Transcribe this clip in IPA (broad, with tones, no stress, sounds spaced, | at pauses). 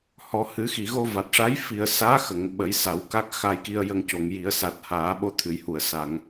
h ɔ˨˩˦ h ɨ˨˩˦ x i˨˩˨ ɣ o˧ v a˨˩ t̚ ʂ a˧˥ j f i˨˩ ə̯ s aː˧˥ x ə˨˩˨ ŋ ɓ ə˨˩˦ j s a˨˩˦ w k a˦˥ k̚ x a˧ j k i˧ ə̯ j ə˧ ŋ c o˨˩˨ ŋ j i˨˩˦ ə̯ s a˨˩ t̚ h aː˨˩˦ ɓ o˧ t̪ʰ ɨ˨˩˨ j h u˨˩˨ ə̯ s a˨˩˨ ŋ